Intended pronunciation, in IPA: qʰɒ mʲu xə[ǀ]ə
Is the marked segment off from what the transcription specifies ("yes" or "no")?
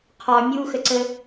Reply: no